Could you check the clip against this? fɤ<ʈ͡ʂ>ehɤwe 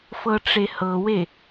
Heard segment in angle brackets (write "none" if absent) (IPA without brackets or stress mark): ʈ͡ʂ